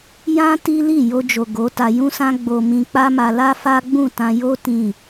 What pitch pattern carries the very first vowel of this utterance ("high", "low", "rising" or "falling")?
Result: high